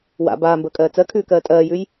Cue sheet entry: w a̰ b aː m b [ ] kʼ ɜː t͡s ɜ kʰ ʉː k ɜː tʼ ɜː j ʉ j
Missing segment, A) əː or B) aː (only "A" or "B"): A